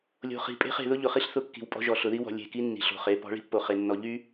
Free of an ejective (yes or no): no